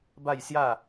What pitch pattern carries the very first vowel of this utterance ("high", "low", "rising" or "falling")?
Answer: falling